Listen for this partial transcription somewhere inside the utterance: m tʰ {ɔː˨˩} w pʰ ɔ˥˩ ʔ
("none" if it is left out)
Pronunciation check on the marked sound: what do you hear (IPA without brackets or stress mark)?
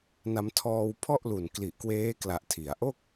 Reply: ɔː˧